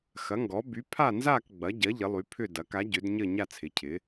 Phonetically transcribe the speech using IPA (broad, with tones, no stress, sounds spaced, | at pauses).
x ɐ˩˥ ŋ ɡ ɔ˩˥ b y˩˥ pʰ a˥˨ n z a˥˨ k ɡ͡b ɐ˩˥ ɟ ɐ˩˥ ʎ ɪ˩˥ lˠ y˩˥ pʰ ʏ˥˨ d ɐ˩˥ k a˩˥ ɟ ʏ˩˥ d ɲ ə˥˨ ɲ a˥˨ t͡sʰ ɪ˩˥ cʰ ɪ˩˥